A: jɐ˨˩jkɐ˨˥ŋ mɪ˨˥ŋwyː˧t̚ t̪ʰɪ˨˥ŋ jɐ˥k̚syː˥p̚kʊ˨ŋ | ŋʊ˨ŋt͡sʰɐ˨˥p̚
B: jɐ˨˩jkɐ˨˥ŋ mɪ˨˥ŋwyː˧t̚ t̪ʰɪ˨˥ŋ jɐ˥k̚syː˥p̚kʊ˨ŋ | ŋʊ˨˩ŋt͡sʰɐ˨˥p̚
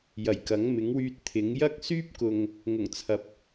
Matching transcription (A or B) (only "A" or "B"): B